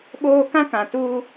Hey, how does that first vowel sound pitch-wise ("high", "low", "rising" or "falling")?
high